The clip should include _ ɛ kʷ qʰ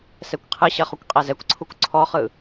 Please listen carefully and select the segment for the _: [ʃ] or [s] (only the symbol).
s